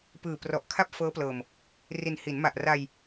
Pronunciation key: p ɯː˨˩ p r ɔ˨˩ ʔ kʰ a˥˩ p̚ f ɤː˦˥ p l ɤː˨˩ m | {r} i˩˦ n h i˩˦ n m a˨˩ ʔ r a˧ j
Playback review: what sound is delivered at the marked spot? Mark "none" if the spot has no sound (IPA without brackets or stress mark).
r